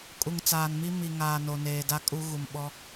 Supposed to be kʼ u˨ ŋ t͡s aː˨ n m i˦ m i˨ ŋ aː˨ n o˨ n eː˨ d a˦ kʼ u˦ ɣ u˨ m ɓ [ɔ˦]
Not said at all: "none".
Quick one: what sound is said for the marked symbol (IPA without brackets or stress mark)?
ɔ˦